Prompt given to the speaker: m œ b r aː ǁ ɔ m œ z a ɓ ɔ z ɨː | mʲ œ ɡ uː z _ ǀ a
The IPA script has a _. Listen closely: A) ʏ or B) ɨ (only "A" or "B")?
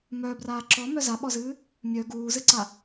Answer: B